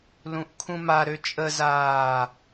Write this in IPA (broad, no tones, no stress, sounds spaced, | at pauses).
l ũ ʔ kʰ ũ m a ɾ ø t͡ʃʼ ə z aː